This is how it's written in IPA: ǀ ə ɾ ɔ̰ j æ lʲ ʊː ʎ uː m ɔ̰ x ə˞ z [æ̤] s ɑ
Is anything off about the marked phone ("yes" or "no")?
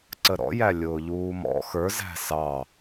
no